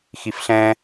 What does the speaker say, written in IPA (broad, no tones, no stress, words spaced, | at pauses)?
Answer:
xifɬɛ̃